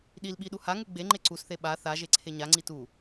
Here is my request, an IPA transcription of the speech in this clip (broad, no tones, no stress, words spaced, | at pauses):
ɗilɓi ɗuhaŋu ɡ͡beŋ͡ǃe ǀusθe ɓa θa ʒeǀʰeɲaŋ͡ǀi tu